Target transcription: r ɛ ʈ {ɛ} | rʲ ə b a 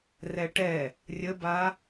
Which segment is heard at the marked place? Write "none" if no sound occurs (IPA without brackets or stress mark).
ɛ